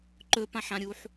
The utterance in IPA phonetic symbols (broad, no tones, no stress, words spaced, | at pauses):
ǃɵpãħãɾʲuħ